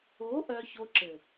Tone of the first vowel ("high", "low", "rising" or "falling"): rising